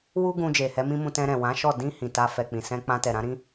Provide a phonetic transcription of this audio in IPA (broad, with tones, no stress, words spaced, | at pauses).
wu˦ɡũ˧ d͡ʒe˨hɛ˨˦mĩ˦mũ˧ tɛ̃˧ɾɛ̃˨wã˨˦ʃɔ˦˨ dĩ˧ hĩ˨ta˧ fɛ˨k͡pĩ˨sɛ̃˧ k͡pã˧tɛ˨ɾã˨˦ ɾĩ˦